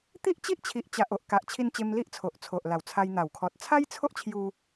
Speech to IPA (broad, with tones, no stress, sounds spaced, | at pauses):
t̪ i˦ ʔ t͡ɕ i˦ ʔ t͡ɕʰ i˨ ʔ t͡ɕ a˨ ʔ o˨ ʔ k a˨ ʔ t͡ɕʰ i˧ n t͡ɕ e˧ m l i˦ ʔ t͡sʰ o˨ ʔ t͡sʰ o˨ ʔ l a˨˩ w t͡sʰ a˧ j n̪ a˨˩ w kʰ ɔ˨ t̚ t͡sʰ a˦ j t͡sʰ o˦ ʔ t͡ɕʰ j u˧